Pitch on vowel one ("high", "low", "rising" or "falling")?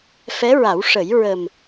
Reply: rising